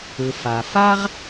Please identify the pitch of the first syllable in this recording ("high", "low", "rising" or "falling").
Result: low